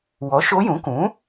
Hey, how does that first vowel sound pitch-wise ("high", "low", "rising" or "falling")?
rising